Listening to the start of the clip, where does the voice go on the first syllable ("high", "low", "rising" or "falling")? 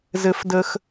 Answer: low